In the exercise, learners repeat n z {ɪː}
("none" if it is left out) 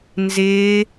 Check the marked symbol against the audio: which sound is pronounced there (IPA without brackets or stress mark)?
ɪː